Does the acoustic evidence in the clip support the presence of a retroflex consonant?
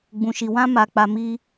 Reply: no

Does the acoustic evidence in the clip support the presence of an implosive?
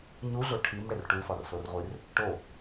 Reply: no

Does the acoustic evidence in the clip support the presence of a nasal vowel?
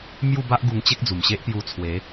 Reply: no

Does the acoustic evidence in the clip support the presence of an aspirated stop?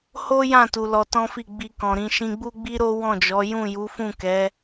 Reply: no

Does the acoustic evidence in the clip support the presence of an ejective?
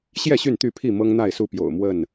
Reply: no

